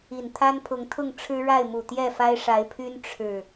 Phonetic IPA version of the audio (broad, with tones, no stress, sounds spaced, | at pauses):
i˨˩ n t̪ʰ a˦ n pʰ ʊ˨˦ ŋ t̪ʰ ʊ˥˨ ŋ ʈ͡ʂʰ ɻ̩˦ ɻ a˥˨ ɪ̯ m u˨˩ t̪ j ɛ˥˨ f a˦ ɪ̯ ʂ a˨˦ ɪ̯ pʰ y˦ n ʈ͡ʂʰ ɻ̩˨˩